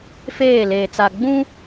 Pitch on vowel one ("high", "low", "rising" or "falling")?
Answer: falling